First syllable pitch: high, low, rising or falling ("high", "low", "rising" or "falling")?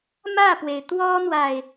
falling